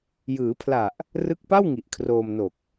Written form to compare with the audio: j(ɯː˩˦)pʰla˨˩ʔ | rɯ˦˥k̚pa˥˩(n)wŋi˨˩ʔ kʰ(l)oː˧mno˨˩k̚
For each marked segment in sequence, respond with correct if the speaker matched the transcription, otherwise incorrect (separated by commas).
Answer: correct, incorrect, incorrect